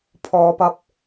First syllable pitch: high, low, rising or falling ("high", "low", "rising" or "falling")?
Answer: low